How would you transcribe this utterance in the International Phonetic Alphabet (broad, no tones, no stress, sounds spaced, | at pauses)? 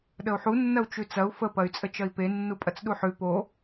ɗ ə u̯ ħ u nː ɐ u̯ t͡ʃ ʉ t͡s ɐ u̯ f ə p ɐ y̯ t͡sʼ ə t͡ʃ ɐ i̯ p e nː u pʼ ɐ t͡s ɗ u ħ ʉ p o